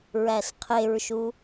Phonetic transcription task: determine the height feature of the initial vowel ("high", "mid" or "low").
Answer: low